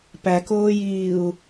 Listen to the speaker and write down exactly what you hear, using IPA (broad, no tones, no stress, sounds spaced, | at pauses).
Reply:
p æ k oː j iː u̯